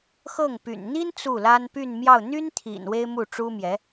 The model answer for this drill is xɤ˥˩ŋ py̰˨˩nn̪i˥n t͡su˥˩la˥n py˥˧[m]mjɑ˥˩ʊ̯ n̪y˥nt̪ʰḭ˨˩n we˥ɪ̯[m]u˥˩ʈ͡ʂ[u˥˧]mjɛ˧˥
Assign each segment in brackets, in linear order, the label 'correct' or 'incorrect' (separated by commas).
incorrect, correct, incorrect